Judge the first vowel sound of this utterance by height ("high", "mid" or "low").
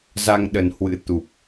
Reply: low